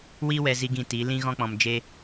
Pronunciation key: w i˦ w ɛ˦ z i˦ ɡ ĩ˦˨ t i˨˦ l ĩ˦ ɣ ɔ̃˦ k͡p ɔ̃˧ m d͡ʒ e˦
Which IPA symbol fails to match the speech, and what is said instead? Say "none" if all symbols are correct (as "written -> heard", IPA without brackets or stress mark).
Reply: none